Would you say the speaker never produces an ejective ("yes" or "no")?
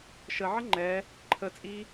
no